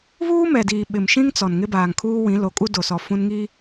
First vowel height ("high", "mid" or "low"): high